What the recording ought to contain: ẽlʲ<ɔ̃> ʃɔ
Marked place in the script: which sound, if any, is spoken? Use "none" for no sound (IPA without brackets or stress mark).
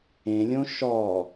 õ